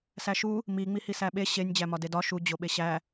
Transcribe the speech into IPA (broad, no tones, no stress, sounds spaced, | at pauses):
s æ ʃ u | m i ŋ͡m i h i s æ ɓ e ɕ e nʲ d͡ʑ æ m ɒ d e d ɒ ʃ u d͡ʑ o ɓ e ɕ æ